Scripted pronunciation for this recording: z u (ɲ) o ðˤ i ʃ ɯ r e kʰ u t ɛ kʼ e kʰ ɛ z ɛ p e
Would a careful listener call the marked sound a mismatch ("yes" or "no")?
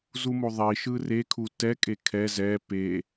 yes